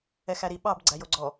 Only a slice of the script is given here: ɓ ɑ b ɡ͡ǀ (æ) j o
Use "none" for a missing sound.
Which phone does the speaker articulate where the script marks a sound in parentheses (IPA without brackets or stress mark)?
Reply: æ